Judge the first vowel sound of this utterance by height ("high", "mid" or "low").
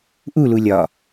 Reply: high